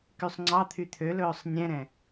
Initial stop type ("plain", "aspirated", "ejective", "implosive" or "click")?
plain